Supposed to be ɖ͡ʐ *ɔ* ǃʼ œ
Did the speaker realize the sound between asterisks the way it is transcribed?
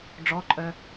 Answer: yes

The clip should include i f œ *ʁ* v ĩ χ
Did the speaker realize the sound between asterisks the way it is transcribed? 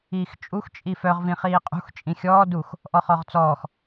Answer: yes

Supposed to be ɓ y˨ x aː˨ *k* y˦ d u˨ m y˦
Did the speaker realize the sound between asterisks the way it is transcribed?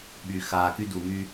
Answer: yes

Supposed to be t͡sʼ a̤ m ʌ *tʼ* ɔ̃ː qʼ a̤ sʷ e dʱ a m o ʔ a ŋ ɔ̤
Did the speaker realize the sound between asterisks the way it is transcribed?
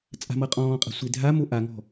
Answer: no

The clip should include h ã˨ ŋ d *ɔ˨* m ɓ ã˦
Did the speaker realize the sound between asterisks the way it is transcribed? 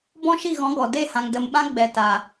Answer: no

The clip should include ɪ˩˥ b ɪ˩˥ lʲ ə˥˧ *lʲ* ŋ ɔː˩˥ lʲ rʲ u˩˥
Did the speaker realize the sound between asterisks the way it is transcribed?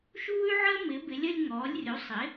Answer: yes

